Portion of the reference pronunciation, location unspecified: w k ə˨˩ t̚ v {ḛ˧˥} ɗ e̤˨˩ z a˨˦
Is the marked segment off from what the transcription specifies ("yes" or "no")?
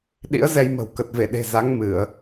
yes